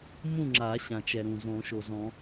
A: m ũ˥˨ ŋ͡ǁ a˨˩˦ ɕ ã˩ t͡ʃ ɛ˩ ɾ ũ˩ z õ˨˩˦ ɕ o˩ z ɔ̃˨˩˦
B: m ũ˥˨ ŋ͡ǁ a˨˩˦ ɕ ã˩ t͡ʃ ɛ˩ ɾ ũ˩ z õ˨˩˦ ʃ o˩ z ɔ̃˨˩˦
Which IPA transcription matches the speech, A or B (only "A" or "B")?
B